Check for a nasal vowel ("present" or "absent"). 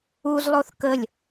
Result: absent